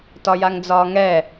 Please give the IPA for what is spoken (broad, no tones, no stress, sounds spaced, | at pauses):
t ɒ j a ŋ d͡z ɒː ŋ ɛ